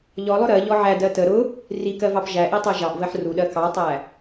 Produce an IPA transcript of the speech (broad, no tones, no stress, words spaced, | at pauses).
ʎɔlˠʊ ɾɜʎɔ ʕædɜ tə ɾʊ | rikɜvɑp ʒæʔitˤɜ ʒɑʔvɜħ ruɗɜ kɑtˤæ